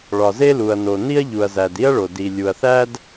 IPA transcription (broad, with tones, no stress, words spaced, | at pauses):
ɭɒ˩ze˥lu˩ɐ̯no˩ ni˥ɐ̯ʎu˩ɐ̯zæ˩d i˥ɐ̯ɭo˩ di˩ lʲu˩ɐ̯θæ˥d